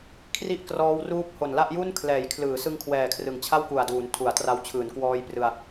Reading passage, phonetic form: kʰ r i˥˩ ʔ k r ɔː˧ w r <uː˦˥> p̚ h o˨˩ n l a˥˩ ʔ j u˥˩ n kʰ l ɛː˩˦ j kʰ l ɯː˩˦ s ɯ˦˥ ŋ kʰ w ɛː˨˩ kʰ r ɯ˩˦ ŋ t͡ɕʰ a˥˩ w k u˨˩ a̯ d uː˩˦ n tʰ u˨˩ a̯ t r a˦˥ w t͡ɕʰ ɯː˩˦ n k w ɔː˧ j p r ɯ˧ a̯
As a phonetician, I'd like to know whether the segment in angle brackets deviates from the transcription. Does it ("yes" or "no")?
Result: no